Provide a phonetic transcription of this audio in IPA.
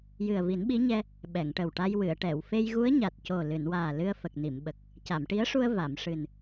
j ɨ˨˩ ə̯ v i˨˩˦ n ɓ i˧˥ ɲ ɛ˧ | ɓ ɛ˨˩˨ ŋ ʈ ə˨˩ w ʈ a˧ j w ɨ˨˩˨ ə̯ ʈ ɛ˨˩˨ w f e˧ j ɣ u˧˥ ə̯ ɲ a˨˩ t̚ c o˨˩ l ɨ˨˩˨ n w aː˨˩ l ɨ˧ ə̯ f ə˨˩ k̚ n i˨˩˨ m ɓ ə˨˩ k̚ | c a˨˩˨ m ʈ i˧˥ ə̯ ʂ u˧ ə̯ v a˨˩˨ m ʂ ɨ˨˩ n

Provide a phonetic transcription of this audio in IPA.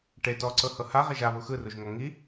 ʈ e t ɔ ǀ ɤ h ɤ h a ʁ e ʒ a β u x ɯ r u ʒ ŋ ɔ ŋ i

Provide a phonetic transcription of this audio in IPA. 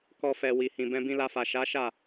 k ɔ˦ f ɛ˧ w i˨ h ĩ˨ b ɛ̃˧ b ĩ˧ l a˧ f a˨ ʃ a˨˦ ʃ a˦˨

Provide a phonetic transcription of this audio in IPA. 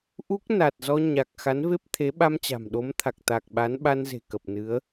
ʔ u˦˥ k̚ n a˨˩ t̚ z ɔ˧ ɲ a˨˩ k̚ x a˨˦ n v e˦˥ p̚ t̪ʰ e˨˦ ɓ a˧ m t͡ɕ a̤˨˩ m ɗ o˨˦ m t̪ʰ a˨˩ k̚ t̪ a˨˩ k̚ ɓ a˨˦ n ɓ a˧ n z e̤˨˩ k ə˨˩ p̚ n ɨ˨˦ ə̯

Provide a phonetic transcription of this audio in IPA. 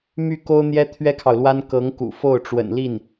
m y˥˩ k o˥ ʊ̯ n̪ j ɛ˥ t̪ʰ ɥ ɛ˥ kʰ ɑ˨ ʊ̯ l w a˥ n k ɤ˧˥ ŋ k ṵ˨˩ f o˥˩ ʊ̯ ʈ͡ʂ w ə̰˨˩ n l i˥˩ n

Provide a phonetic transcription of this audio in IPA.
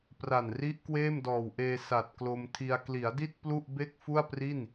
p r a˨˩ n r i˦˥ ʔ k w eː˥˩ m d ɔː˨˩ w ʔ eː˧ s a˨˩ t̚ k l o˧ m tʰ i˧ a̯ k l i˩˦ a̯ d i˥˩ t̚ p l u˥˩ ʔ b e˥˩ k̚ f u˥˩ a̯ p r i˥˩ n

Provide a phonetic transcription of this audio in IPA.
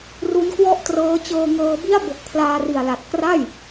r u˦˥ n k w ɔ˥˩ ʔ t r ɤː˦˥ t͡ɕ ɤː˧ ŋ ɤː˧ b i˥˩ a̯ b o˨˩ k̚ pʰ l aː˧ r i˨˩ a̯ l a˨˩ t̚ k r a˥˩ j

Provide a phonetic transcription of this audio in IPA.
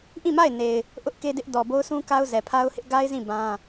ʔ ĩ˦˨ m a˦˨ ɪ̯ n e˨ ɪ̯ | ʔ ʊ˦ ʔ k e˦ d ɪ˦ ʔ d ɔ˨ b o˦ ʊ̯ s ũ˦ k a˦ ʊ̯ z ɛ˨ pʰ a˦ ʊ̯ h ɪ˦ ʔ ɡ a˦ ɪ̯ z ĩ˦˨ b ã˦

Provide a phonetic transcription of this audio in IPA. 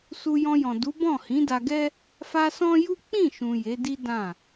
s u˧ j ɔ̃˧ j ɔ̃˨ d u˨˦ b ɔ̃˦˨ h ĩ˨˦ d a˧ ɡ ɛ˦ | f a˧ s ɔ̃˦ j u˦ k͡p ĩ˦˨ ʃ ũ˨ j e˨˦ d i˦ d ã˦˨

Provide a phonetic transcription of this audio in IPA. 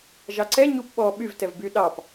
ʒ ɑ ǀ ɛ ɲ u p ɓ ɔ ɓ y v t ɛ v b y ɗ ɑ p

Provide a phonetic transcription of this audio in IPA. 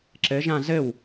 ǁ ɘ ʒ ã z ɘ w

